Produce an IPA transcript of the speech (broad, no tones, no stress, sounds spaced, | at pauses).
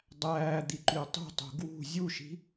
dˤ æː d̪ i ǃ y tˤ ṳ tˤ ṳ ɡ w ṳ zʲ u ʃ i̤